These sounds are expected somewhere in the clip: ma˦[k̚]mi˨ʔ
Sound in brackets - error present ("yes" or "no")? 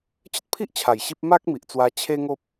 no